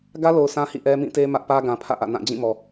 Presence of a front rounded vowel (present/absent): absent